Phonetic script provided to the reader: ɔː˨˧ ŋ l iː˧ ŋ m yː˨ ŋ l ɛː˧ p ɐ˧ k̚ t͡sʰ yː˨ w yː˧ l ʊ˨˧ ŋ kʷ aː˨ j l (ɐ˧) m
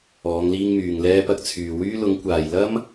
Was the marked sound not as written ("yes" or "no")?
yes